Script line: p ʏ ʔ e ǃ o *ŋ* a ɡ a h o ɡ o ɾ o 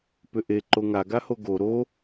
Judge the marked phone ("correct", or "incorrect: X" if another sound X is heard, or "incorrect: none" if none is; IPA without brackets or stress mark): correct